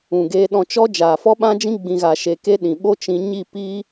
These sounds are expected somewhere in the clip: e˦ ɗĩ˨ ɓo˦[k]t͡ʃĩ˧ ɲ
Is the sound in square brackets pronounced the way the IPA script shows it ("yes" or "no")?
no